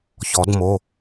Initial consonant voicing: voiceless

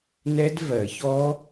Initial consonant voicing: voiced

